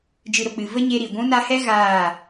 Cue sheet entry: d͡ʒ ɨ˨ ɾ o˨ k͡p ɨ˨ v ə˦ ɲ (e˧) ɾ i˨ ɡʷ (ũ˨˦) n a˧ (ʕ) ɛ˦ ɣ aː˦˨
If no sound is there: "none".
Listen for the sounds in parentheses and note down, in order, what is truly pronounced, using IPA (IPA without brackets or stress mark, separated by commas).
e˧, ũ˨˦, h